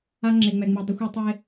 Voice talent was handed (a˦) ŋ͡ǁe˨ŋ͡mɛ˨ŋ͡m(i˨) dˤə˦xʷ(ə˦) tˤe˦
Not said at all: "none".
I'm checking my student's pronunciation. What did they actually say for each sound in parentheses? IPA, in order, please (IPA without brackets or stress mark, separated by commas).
a˦, i˨, ɛ˦